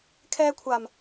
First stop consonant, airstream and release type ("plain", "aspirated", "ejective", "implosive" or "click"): aspirated